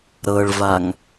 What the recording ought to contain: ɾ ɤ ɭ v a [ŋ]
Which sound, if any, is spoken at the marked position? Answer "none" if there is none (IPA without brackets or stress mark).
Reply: ŋ